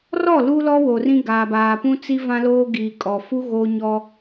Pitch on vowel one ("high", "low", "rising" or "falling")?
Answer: falling